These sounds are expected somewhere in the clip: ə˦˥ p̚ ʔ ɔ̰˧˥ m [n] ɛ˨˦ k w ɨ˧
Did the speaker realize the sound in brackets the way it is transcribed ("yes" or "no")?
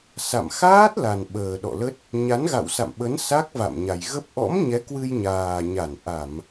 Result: no